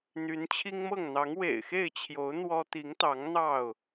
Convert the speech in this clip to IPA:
n̪y˨˦nt͡ɕʰi˦ŋmɤ˥˨ŋ n̪ɑ˨˦ŋwḛ˨˩ɪ̯xe˥˨ɪ̯t͡ɕʰjo˨˦ʊ̯ n̪wɔ˦ t̪i˨˦ŋt̪ɑ˨˦ŋ n̪ɑ˥˨ʊ̯

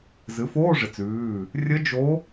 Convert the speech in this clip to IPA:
zɨ˩˥foː˧˥˧ʐɪ˩˥t͡s ʉː˩˧˩ | rʲə˧˥d͡ʒo˧˥

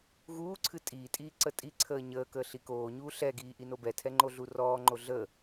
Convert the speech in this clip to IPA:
ɣuːǀʰɨ tʼiːtʼiː ǀətʼiǀʰəː ɲəːkəː ɬikoːɲuː ɬɛɡiː ʔinobɛtʰɛ ŋ͡ǃoɮurɔːŋ͡ǃo ɮə

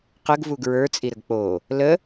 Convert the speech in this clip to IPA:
qəɡvu ɡɹə˞t͡sʼiɾəɡ k͡po | lə

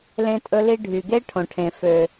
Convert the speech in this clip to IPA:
lẽ˦tʼɵ˦li˦ ɖʱy˨ɡe˦ ʈʰõ˨ʈʰẽ˨ fø˨

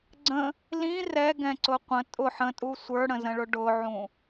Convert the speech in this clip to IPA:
ɡ͡ǀə̃ | lĩ rɛɡɛ̃ǀʊ qʷə̃ tʼʊ ħə̃tʼu sʷə˞ɽə̃zə̃ɭʊ ɖʊʕũ

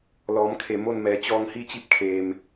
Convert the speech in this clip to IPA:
lɔː˩˧m kʰe˩ mo˥˨nmɛː˩˧ t͡ɕɔː˧ŋhi˥˨t͡ɕi˧˥p̚kʰeː˩m

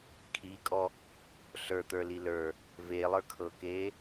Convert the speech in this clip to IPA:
kʰikʼɔ | ɬə˞t̪ə˞li lə˞ | velˠə˞kʰɤkeː

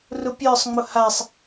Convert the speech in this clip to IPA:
rʊpʲə˞sˤŋ͡mʊ hasˤ

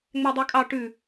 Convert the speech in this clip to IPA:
ŋ͡mædˤʉkʼɑ ʈʉ

